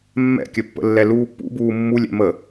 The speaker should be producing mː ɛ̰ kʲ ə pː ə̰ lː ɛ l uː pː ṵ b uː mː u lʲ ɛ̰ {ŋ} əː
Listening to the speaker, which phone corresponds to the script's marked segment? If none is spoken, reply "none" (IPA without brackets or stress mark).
m